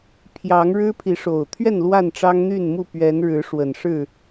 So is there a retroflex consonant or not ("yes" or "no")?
yes